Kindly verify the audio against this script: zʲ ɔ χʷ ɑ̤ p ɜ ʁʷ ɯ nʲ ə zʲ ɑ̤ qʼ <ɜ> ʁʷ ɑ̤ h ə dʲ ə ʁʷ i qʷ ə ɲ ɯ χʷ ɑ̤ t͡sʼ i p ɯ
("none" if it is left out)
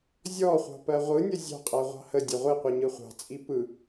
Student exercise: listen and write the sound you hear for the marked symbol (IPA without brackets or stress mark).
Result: ɜ